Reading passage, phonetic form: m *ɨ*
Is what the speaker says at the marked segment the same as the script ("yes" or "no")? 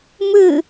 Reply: yes